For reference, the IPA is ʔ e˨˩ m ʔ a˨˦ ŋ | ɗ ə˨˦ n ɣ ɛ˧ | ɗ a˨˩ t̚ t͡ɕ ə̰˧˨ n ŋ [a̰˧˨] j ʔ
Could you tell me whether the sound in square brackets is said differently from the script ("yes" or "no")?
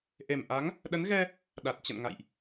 no